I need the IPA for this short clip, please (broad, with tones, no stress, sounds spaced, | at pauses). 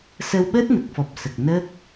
s əː˧ w ɓ əː˦˥ t̚ n ə˨˩ k̚ f ɔ˨˩ p̚ s ə˨˩ k̚ n əː˦˥ k̚